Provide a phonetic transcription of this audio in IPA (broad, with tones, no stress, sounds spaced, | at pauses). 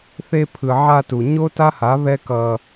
θ e˧ pʰ ɯ˨ ʕ a˧ t u˨ ɲ o˦ t a˦ h a˨˦ β ɛ˦ k ʌ˧